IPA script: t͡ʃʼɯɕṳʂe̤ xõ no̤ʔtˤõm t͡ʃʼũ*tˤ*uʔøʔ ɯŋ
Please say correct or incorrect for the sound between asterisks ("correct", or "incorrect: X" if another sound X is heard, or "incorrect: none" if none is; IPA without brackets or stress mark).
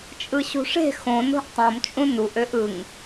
incorrect: n